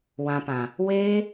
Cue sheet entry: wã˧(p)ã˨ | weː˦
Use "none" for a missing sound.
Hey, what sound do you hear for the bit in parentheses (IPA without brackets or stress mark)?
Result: p